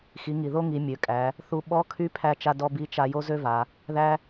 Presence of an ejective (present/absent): present